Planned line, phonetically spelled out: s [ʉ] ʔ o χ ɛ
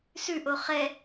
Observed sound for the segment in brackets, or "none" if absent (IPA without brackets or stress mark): ʉ